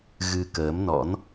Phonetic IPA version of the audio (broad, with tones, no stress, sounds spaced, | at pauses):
ɣ ɨ˧ k əː˨˦ m n ɔ̰˧˥ n